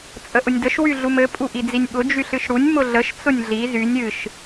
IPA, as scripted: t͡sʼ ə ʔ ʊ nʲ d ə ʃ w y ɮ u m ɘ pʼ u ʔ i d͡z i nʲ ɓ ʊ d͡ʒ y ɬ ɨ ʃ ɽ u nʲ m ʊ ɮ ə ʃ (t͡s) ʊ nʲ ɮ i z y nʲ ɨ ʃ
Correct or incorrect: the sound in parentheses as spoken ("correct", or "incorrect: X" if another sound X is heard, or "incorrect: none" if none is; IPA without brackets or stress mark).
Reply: correct